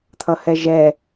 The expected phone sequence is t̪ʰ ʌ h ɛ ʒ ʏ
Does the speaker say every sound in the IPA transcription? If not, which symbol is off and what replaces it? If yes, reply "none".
ʏ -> ɛ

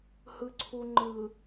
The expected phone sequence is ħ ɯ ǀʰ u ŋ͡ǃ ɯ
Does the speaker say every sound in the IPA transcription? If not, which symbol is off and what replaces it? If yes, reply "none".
ħ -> h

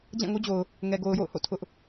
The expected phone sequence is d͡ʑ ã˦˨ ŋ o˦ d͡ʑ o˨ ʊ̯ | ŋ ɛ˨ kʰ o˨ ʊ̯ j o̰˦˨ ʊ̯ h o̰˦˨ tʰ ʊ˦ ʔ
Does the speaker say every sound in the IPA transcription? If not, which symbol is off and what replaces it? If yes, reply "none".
kʰ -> ɡ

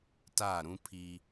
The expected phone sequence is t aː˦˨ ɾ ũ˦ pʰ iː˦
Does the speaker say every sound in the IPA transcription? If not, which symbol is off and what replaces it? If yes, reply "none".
none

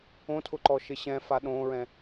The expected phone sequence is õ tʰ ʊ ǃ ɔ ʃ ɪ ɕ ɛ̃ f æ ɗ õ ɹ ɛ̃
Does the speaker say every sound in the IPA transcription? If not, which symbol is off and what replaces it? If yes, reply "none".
æ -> a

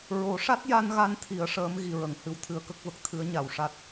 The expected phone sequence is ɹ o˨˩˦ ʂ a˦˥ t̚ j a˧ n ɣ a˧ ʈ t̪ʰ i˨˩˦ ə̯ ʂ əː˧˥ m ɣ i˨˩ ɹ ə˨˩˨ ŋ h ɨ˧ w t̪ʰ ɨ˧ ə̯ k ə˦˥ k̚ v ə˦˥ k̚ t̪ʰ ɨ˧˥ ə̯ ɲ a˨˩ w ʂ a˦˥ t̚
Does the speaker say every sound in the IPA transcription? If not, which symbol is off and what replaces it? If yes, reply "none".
ʈ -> n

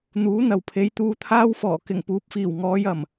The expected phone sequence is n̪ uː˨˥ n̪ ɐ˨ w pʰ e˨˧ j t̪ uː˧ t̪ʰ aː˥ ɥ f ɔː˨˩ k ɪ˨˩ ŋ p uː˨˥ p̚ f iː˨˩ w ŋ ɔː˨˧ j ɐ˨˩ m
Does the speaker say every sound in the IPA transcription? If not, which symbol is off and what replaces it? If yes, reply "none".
ɥ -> w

